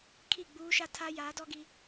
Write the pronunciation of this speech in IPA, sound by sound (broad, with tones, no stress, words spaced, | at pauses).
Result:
kʰi˦˨ɡ͡buː˦ʃa˦tʰa˦ jaː˨˦dɔ˦ɡi˦